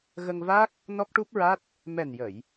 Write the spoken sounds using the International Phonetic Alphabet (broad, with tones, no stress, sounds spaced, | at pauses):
ɣ ə˧ ŋ v a˦˥ k̚ | n ɔ˦˥ k̚ ʈ u˦˥ p̚ ɹ a˦˥ t̚ | m ɛ˨˩ n j ə˨˩˨ j